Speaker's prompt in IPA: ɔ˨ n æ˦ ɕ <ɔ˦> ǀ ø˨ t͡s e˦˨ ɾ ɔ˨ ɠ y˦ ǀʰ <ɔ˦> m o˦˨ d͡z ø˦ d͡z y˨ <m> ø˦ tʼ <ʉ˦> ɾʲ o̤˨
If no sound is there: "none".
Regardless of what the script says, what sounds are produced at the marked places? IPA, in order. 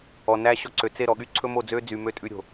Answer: ɔ˦, ɵ˦, m, ʉ˦

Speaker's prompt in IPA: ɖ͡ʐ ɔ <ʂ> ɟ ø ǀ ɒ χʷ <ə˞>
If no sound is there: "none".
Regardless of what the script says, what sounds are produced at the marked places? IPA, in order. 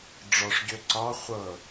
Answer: ʂ, ɤ

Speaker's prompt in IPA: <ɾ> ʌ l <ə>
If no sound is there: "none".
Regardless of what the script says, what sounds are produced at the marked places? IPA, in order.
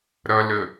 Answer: ɾ, ə

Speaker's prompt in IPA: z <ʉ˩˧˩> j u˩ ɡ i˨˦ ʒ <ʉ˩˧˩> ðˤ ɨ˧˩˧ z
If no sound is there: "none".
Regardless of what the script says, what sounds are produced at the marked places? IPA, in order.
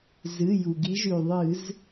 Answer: ɨ˩˧˩, ʉ˩

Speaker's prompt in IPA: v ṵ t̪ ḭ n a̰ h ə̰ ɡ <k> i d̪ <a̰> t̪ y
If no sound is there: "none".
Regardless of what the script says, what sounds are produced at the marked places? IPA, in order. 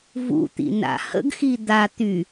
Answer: x, a

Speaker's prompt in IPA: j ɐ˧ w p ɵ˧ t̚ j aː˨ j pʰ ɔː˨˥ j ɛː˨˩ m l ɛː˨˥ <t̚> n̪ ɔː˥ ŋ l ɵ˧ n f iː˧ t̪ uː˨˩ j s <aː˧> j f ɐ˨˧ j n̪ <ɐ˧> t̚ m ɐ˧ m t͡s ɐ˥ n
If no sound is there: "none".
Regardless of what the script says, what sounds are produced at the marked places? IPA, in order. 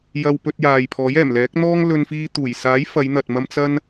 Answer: k̚, aː˨˥, ɐ˨

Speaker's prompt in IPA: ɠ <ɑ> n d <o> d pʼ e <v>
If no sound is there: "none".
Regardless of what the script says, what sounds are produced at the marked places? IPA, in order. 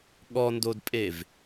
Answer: ɔ, o, v

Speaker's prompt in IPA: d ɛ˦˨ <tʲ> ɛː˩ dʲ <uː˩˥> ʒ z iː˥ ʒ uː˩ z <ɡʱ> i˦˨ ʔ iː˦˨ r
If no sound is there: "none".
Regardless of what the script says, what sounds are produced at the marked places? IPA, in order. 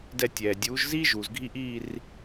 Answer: tʲ, uː˩˥, ɡʱ

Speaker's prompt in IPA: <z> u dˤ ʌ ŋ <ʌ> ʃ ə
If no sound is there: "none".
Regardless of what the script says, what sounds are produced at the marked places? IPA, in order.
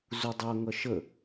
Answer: z, ʌ

